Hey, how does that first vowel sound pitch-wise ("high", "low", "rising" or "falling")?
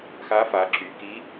rising